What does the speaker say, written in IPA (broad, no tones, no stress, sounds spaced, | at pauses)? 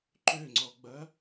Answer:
ǃ ø ŋ͡ǀ ɔ ɡ͡b ɐ